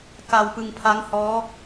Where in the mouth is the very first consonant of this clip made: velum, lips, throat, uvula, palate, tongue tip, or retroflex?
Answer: velum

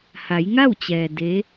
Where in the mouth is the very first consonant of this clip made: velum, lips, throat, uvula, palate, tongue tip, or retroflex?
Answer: throat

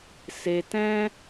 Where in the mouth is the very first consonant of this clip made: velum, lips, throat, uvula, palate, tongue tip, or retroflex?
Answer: tongue tip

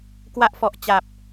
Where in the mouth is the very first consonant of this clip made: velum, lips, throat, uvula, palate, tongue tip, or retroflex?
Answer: velum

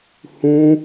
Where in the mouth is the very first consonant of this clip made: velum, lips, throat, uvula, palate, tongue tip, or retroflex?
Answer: throat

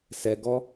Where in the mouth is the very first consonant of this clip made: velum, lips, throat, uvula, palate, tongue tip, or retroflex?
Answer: tongue tip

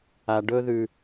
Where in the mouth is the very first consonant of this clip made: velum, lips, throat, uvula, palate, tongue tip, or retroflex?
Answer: retroflex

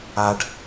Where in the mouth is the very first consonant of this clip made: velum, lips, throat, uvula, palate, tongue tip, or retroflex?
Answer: retroflex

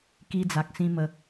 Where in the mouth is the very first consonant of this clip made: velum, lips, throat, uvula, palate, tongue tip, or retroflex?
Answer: velum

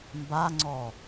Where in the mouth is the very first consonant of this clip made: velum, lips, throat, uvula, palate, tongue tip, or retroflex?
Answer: lips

